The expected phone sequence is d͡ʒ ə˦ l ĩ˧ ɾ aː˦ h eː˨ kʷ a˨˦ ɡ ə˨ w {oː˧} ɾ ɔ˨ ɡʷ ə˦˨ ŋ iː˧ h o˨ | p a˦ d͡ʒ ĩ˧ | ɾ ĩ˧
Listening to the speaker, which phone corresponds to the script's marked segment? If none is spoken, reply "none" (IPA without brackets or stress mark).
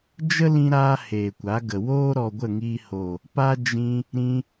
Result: oː˦